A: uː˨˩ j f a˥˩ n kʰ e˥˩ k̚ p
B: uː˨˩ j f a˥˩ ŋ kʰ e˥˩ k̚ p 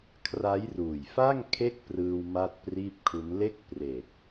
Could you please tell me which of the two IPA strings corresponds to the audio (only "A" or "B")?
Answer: B